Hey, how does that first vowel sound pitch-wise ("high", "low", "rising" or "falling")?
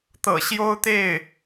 low